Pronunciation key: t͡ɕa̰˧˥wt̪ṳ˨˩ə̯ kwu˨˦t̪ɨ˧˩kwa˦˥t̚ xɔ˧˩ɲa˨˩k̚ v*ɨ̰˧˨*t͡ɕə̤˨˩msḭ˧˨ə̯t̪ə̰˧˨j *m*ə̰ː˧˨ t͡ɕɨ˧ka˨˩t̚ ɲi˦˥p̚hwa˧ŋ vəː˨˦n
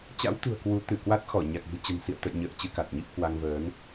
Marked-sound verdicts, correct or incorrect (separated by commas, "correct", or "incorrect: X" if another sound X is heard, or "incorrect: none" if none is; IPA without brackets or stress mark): incorrect: ɨ̤˨˩, incorrect: ɲ